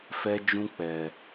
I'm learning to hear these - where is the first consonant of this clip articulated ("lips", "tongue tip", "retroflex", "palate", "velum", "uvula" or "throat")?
lips